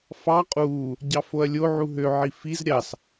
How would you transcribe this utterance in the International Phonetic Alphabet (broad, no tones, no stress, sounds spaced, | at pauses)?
f ɑ qʼ uː | ɟ ɑ f o ɐ̯ lʲ o ʕ u ɦ ø ʕ i f i z ɾʲ ɑ s